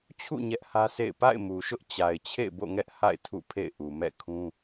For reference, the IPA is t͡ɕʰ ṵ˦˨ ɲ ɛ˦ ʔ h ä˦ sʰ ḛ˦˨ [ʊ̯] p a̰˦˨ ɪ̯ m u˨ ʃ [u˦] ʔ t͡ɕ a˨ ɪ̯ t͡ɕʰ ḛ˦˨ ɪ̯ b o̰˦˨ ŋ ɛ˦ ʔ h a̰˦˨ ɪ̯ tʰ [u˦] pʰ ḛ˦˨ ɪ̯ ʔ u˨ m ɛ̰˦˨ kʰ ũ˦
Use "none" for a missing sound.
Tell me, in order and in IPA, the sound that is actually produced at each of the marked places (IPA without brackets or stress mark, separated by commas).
ɪ̯, ʊ˦, ṵ˦˨